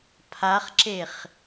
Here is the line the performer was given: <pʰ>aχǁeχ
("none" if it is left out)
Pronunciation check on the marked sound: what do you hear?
pʰ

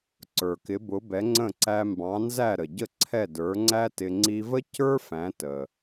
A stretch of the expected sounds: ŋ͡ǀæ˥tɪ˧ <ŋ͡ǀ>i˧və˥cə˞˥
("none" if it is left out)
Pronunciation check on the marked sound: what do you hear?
ŋ͡ǀ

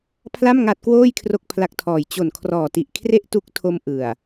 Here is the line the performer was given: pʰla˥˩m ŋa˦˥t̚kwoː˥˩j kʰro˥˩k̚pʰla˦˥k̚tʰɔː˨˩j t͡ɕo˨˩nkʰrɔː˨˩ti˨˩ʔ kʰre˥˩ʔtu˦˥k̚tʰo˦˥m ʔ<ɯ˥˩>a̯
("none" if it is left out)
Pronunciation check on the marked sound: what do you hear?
ɯ˨˩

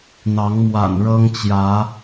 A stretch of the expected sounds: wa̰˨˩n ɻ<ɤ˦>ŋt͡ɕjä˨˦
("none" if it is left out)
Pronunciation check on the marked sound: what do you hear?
ɤ˦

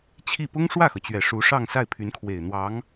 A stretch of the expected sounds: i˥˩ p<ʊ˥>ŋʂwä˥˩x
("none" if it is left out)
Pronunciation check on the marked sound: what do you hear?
ʊ˥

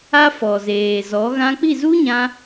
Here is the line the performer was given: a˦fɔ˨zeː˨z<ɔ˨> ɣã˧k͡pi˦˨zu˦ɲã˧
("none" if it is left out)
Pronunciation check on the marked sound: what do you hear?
ɔ˨˦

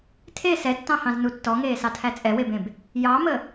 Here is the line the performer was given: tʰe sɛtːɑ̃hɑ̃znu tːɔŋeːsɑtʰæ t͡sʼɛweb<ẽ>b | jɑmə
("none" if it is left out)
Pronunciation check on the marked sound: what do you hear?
ẽ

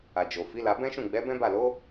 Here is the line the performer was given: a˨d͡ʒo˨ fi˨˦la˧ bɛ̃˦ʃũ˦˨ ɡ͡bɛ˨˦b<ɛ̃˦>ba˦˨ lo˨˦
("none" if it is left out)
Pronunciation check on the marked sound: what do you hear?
ɛ̃˦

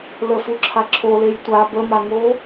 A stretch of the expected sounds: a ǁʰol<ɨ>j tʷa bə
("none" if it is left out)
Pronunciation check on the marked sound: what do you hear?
e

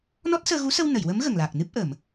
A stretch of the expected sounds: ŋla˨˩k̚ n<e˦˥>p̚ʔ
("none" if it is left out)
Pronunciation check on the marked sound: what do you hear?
ɨ˦˥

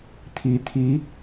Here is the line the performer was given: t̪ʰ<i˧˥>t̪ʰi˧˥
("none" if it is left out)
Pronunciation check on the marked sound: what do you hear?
i˧˥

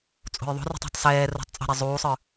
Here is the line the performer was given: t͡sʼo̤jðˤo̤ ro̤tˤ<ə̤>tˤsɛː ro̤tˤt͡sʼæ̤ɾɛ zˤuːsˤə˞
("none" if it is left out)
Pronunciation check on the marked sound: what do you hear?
ɛ̤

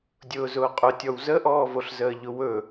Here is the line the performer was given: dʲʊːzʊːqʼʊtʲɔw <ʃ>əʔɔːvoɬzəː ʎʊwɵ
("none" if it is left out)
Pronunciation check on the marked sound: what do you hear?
z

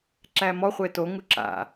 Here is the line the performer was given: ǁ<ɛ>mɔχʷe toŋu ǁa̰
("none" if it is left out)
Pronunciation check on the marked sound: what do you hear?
æ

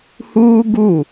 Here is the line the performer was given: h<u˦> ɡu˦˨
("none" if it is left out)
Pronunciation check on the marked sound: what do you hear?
uː˦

